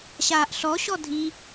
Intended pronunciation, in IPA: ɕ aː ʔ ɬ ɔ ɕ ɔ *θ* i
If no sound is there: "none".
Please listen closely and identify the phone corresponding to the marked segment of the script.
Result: dʱ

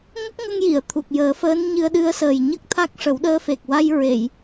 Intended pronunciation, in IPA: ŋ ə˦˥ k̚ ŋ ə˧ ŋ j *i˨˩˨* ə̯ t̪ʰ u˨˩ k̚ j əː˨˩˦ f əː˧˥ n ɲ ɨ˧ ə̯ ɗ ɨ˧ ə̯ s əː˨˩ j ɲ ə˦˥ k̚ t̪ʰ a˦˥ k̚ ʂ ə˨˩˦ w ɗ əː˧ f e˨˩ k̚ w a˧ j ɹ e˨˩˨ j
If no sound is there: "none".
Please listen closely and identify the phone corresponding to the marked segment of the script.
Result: i˨˩˨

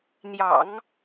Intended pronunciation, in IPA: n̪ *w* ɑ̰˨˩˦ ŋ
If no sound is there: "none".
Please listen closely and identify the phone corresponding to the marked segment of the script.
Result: j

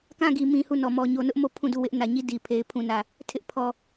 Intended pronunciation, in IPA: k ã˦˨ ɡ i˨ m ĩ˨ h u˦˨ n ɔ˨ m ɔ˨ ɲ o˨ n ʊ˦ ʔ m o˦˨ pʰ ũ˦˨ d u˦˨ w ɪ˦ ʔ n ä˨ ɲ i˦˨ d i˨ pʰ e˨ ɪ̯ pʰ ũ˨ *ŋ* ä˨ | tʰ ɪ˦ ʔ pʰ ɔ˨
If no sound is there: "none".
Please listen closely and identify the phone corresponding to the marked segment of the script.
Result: n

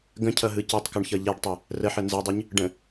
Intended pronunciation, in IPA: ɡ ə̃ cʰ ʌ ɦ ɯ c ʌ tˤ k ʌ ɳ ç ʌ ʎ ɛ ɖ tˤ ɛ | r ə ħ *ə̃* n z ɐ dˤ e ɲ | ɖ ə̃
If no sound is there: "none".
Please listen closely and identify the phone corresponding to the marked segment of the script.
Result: ə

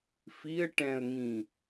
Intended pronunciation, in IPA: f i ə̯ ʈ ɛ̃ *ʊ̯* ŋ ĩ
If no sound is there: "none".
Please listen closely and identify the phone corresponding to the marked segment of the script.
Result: ə̯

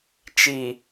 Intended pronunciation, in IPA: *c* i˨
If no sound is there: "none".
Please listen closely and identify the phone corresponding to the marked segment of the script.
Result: t͡ʃ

